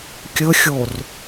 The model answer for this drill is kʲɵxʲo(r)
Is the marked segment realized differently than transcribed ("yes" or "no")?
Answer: no